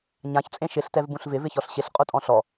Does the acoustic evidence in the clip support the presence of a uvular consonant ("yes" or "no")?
yes